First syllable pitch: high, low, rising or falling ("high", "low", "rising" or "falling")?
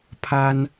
high